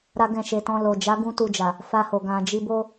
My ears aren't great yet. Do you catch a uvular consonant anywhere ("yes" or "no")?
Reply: no